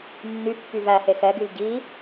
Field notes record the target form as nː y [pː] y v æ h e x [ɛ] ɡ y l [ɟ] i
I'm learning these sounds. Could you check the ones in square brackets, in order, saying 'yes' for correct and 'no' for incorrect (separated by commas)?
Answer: yes, yes, yes